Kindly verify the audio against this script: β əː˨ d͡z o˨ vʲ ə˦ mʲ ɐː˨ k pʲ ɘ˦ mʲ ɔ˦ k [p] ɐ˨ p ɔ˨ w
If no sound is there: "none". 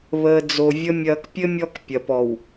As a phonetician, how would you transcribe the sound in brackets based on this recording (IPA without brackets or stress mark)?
pʲ